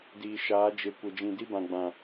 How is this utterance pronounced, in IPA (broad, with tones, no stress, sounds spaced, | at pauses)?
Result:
d iː˨ ʃ aː˨˦ d͡ʒ e˨ kʷ e˨ d͡ʒ ĩ˨ d i˦ b ã˨ ɡ͡b ã˨